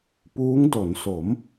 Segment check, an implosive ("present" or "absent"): absent